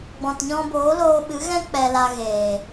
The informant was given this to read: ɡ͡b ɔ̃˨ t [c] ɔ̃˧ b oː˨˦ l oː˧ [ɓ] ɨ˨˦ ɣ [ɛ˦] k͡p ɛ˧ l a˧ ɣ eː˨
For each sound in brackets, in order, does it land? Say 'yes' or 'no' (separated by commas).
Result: no, yes, no